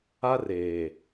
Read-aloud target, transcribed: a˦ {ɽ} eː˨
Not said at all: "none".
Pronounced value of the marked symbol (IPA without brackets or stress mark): r